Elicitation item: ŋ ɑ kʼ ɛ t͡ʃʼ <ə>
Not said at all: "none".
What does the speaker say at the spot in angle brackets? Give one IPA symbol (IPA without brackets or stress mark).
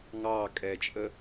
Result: ə